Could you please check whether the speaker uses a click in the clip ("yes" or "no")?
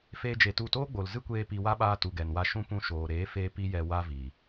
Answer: no